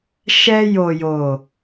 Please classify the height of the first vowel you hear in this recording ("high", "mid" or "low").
mid